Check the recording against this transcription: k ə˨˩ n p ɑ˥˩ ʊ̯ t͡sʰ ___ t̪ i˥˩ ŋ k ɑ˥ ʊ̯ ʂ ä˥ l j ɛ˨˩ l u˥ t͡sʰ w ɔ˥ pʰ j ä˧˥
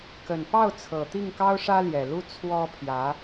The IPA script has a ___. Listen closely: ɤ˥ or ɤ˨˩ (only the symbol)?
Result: ɤ˨˩